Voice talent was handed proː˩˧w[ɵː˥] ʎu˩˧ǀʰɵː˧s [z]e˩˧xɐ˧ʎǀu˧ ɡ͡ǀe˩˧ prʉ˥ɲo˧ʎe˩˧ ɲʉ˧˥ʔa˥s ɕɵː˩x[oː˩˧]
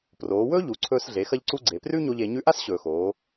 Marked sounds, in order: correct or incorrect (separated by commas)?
correct, incorrect, correct